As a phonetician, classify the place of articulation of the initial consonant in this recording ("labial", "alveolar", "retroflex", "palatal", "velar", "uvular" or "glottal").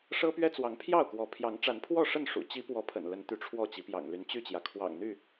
retroflex